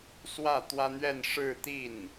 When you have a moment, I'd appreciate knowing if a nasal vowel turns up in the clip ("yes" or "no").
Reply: no